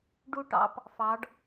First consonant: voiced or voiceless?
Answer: voiced